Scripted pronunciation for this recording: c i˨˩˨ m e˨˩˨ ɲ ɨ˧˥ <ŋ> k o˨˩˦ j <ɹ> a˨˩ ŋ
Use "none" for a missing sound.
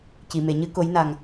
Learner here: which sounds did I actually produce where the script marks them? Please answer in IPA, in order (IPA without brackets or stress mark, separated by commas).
none, n